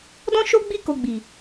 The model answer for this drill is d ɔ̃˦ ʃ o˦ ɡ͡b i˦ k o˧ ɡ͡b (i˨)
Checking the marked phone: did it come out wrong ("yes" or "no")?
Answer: no